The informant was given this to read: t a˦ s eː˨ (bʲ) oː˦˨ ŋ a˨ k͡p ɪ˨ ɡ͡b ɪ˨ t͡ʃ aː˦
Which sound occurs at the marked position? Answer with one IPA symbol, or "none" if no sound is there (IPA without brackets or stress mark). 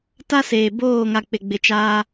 b